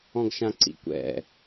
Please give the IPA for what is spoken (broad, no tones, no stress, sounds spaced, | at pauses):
ɔ̃ ɡ ʃ ã ǀ ḭ kʷ ɛ̰